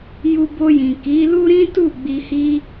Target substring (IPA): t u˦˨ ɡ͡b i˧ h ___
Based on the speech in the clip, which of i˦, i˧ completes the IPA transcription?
i˦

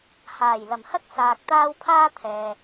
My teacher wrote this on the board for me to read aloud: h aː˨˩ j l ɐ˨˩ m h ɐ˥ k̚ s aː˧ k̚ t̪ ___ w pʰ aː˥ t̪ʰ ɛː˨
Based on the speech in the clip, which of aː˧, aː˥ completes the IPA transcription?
aː˥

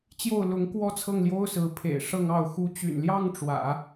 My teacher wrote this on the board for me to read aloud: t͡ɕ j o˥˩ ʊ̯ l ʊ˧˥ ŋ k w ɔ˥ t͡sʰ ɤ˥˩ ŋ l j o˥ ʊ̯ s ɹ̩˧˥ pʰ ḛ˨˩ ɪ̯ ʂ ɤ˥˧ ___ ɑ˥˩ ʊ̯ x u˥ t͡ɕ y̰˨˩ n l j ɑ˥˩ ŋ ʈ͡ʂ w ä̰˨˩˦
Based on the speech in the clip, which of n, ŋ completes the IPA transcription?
ŋ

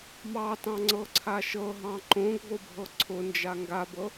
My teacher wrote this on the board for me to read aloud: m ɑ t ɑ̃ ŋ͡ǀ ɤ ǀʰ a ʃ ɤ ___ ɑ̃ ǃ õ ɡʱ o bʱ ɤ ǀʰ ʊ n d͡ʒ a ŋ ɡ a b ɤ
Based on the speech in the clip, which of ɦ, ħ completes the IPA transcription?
ɦ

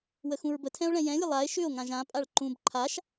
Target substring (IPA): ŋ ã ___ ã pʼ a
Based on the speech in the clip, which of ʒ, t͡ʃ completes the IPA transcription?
ʒ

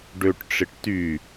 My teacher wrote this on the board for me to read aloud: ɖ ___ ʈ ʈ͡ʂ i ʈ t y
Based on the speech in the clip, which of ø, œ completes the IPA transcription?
ø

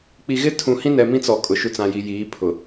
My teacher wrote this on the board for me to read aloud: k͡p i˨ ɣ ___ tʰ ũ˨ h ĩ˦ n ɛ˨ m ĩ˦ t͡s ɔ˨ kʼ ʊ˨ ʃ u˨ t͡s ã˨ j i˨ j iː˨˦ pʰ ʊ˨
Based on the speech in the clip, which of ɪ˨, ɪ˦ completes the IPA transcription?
ɪ˦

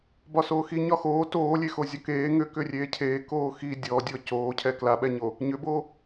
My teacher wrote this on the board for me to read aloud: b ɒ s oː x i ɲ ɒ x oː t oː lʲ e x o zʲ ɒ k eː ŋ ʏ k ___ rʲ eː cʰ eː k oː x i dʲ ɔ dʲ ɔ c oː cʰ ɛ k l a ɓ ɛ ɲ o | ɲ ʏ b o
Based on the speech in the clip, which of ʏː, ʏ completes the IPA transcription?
ʏ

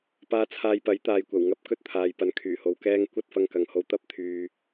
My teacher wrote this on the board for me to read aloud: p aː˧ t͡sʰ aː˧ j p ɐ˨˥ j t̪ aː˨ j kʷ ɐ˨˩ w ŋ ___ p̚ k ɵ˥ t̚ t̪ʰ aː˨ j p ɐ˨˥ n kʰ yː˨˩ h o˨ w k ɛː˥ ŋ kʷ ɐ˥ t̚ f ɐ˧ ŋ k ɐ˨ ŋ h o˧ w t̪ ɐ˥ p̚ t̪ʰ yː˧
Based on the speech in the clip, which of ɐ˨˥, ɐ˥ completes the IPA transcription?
ɐ˨˥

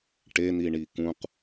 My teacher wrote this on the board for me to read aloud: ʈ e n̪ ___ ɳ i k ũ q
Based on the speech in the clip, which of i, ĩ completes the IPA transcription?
i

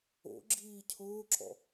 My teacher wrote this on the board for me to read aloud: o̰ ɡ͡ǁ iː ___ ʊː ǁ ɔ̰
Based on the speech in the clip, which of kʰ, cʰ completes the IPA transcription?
cʰ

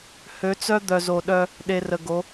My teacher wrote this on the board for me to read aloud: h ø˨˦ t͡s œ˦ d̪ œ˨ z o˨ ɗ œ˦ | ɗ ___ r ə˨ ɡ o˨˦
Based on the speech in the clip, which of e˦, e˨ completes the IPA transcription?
e˨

